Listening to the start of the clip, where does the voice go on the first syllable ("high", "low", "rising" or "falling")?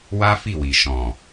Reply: high